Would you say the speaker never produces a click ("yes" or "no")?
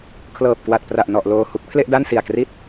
yes